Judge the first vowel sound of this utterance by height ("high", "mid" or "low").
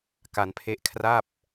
low